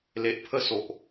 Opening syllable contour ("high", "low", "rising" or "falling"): low